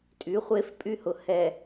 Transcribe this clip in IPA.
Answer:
tʼy˨˦χʷe˦f pʼy˦hʊ˨ hɛ˨

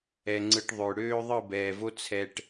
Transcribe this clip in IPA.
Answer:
ɛ˨ŋ͡ǀɯ˨ʈ ðˤø˨ɽøː˦ðˤɯ˦˨ bɛː˨vo˦ t͡sʰɛ˦ʈ

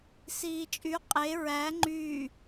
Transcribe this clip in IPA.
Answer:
siːt͡ʃʼy qʼe ɹæ ŋ͡ǃyː

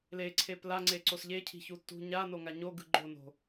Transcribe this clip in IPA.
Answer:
leǀʰep laŋ͡ǀeǀos ʎecʰi̤çu tṳ ɲanoŋa ɲoɡɯ ɡ͡ǃono̤

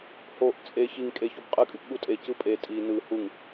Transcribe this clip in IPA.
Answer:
hoʔ t͡sʼe çiŋ kʼe çobqʼɯkʼyp ɠutʼe cɯpʼe tʼi nɯ huŋ

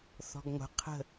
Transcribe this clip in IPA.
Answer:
θɔ̤ɡŋʷə̤ qʰə̤

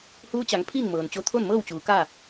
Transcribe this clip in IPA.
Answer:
huː˧˥t͡ɕa˩˧ŋ pʰiː˥˨ŋmɤː˩nt͡ɕo˧ t̪ʰo˥˨nmɤː˥˨wt͡ɕuː˩˧ ka˥˨

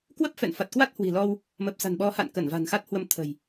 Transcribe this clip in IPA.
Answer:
kwə˦˥p̚fɛ̰˧˨nfa˨˩t̚ kwa˦˥t̚hwi̤˨˩lɔ˧w | mə˨˩p̚sa̤˨˩nɓɔ˨˦ ha̰˧˨nkə˧˩n va̤˨˩nxa˦˥t̚hwə˧m t̪ʰə̤˨˩j

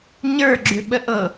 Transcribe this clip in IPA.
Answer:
ɲə˞ɡ͡ǁʏɓə ʔɤ

